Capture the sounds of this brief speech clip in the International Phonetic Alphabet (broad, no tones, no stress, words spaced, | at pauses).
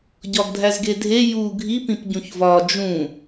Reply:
ɟɒɡdʱæzɡedʱe ju ɡʱipĩp ɟũçvɒ d͡ʒũ